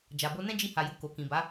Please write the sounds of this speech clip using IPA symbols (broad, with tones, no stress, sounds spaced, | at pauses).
d͡ʒ a˨ b o˧ n ɛ̃˦ d͡ʒ i˧ h a˨ j u˨ k o˨ k ĩ˨ b a˨˦